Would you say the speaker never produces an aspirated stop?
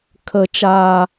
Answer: no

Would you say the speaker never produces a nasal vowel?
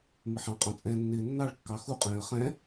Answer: no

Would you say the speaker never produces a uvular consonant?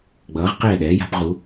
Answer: no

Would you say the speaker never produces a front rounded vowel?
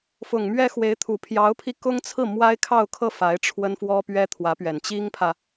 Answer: yes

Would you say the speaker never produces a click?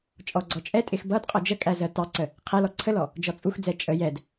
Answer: no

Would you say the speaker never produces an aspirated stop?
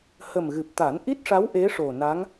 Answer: yes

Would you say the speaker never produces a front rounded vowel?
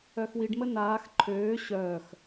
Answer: no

